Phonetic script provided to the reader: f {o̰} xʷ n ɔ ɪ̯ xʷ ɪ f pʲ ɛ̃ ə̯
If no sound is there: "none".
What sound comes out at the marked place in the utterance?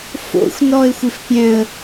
o̰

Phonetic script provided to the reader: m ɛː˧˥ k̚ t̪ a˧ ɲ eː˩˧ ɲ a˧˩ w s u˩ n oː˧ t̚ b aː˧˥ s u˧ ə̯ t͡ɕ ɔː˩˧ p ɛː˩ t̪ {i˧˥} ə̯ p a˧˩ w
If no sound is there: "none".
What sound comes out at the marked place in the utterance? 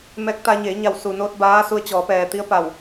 i˧˥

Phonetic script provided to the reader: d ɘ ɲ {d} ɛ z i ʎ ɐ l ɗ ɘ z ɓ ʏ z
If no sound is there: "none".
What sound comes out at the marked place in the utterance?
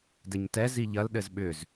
t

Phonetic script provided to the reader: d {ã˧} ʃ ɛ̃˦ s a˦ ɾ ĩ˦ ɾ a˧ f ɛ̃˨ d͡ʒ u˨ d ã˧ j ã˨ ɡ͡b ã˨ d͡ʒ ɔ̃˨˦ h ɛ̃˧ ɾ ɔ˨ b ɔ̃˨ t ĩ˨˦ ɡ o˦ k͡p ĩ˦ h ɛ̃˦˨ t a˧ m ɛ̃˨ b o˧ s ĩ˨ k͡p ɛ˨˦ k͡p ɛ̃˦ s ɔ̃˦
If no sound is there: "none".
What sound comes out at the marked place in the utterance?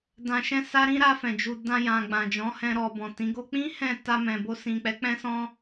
ã˧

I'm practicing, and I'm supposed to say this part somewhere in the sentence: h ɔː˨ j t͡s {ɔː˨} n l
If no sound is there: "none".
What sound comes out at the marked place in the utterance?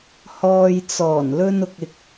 ɔː˨˩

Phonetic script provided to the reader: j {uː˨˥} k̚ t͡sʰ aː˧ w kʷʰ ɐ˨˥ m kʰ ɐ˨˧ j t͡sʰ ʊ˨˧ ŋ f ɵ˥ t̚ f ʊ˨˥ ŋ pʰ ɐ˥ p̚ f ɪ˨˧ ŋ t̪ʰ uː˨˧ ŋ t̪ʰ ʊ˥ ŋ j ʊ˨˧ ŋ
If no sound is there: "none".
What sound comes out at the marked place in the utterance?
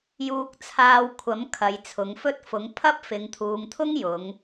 uː˧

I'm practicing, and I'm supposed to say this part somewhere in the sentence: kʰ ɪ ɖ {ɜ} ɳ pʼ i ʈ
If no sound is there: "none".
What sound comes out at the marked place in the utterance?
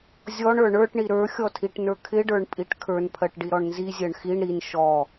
ə˞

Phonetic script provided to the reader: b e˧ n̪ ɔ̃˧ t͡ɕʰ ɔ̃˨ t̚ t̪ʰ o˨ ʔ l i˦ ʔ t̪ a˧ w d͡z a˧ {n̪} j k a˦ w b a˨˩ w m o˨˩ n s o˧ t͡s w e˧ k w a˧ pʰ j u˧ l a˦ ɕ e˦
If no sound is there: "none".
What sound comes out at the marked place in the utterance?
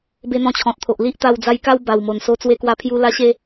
none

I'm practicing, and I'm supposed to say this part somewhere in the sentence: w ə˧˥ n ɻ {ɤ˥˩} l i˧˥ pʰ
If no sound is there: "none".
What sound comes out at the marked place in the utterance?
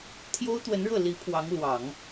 ɤ˥˩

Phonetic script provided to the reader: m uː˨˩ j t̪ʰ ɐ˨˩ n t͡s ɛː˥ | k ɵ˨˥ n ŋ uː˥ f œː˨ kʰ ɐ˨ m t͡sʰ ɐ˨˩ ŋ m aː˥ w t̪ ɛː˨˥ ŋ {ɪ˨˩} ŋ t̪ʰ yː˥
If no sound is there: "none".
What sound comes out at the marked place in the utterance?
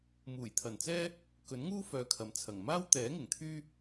ɪ˨˩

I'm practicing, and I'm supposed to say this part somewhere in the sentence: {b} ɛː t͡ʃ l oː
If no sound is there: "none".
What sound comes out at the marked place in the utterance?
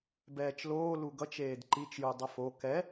b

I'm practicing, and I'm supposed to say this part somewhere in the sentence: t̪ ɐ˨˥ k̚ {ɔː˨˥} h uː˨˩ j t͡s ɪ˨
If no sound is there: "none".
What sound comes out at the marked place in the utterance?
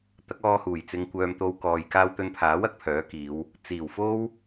ɔː˧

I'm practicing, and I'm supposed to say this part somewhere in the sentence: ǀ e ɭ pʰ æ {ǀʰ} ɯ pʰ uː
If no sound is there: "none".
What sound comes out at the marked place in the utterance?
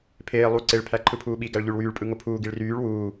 ǃʰ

